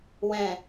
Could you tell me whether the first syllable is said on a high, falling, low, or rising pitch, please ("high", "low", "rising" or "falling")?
low